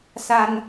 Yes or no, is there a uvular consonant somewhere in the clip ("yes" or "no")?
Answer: no